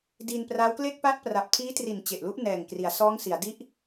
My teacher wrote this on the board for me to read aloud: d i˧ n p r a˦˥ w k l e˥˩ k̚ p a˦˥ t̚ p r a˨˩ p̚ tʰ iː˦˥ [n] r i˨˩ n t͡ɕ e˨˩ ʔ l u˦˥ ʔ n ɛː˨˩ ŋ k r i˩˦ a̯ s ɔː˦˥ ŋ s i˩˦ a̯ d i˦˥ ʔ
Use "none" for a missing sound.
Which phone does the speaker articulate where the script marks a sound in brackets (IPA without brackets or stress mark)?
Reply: t